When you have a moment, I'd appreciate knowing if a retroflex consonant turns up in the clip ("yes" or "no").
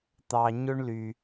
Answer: yes